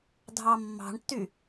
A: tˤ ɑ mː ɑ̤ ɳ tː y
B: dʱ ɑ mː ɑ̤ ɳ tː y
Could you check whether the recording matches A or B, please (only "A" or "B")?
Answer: B